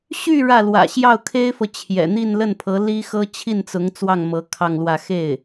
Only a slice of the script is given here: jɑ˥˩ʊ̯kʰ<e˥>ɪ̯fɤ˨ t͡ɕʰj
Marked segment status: correct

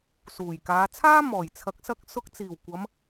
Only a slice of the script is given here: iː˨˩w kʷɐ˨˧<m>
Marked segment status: correct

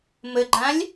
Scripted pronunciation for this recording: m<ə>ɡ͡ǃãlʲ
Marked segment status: correct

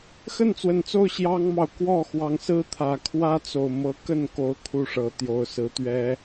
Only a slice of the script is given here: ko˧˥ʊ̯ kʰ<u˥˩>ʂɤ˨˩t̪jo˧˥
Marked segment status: correct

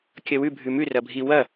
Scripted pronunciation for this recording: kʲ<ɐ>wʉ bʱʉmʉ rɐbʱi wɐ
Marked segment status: correct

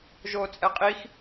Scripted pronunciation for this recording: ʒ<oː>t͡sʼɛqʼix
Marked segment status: correct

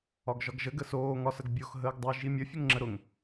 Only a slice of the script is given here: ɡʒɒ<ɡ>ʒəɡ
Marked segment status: correct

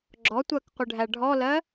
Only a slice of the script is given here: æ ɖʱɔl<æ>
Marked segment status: incorrect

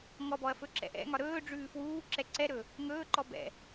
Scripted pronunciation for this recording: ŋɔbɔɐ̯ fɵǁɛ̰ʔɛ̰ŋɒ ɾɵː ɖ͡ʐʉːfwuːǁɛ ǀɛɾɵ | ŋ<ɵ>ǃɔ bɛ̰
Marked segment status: incorrect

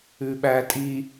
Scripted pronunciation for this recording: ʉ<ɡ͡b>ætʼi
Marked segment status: incorrect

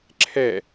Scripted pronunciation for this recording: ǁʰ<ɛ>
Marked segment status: correct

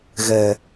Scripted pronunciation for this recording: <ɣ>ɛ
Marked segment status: correct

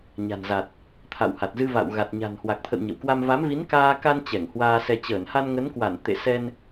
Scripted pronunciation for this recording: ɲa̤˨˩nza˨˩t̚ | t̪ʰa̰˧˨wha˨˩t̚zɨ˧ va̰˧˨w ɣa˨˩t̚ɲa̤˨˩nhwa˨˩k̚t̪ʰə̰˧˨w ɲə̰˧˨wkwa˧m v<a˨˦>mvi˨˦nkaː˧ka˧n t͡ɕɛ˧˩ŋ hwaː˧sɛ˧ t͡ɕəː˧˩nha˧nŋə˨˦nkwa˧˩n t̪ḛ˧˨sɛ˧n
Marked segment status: correct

